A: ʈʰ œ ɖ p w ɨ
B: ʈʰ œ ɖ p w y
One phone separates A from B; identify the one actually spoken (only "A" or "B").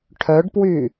B